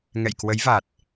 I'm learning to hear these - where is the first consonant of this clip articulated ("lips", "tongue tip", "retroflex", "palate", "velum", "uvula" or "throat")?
velum